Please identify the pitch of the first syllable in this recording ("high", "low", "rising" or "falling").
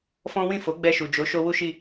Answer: high